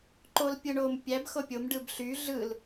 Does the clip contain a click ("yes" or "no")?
yes